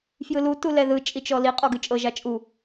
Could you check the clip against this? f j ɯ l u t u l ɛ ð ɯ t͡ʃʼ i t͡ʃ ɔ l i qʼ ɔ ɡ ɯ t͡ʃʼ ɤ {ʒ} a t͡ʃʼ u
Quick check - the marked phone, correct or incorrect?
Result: correct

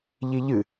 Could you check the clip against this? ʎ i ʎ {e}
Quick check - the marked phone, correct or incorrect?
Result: incorrect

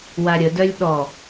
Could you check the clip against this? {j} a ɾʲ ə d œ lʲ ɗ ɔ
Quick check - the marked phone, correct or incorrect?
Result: incorrect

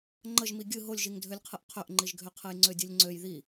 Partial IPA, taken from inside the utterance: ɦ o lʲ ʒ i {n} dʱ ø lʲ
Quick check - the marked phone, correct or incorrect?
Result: incorrect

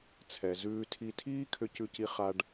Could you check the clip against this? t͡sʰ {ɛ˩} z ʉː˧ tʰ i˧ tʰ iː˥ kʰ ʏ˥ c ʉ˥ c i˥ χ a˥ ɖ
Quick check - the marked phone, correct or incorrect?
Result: correct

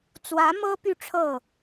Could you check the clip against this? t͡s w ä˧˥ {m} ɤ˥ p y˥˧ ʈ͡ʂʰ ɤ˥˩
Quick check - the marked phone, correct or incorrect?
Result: correct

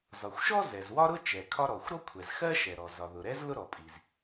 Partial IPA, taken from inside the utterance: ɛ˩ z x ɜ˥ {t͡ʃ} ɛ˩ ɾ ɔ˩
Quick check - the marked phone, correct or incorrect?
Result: incorrect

